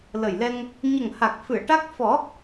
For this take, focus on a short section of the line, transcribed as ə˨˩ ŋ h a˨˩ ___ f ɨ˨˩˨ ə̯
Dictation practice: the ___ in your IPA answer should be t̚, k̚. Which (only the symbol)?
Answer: k̚